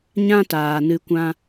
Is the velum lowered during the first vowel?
yes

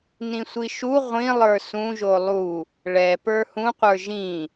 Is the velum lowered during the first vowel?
yes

